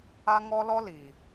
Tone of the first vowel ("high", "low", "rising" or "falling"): high